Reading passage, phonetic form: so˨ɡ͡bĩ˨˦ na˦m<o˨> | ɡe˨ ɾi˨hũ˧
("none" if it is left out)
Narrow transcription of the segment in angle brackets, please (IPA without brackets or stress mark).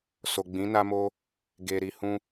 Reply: o˦